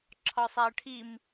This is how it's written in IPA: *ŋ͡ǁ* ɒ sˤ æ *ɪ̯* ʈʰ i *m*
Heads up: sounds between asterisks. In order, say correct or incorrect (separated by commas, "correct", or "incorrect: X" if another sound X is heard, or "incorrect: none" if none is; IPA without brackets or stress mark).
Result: incorrect: ǁʰ, incorrect: ə̯, correct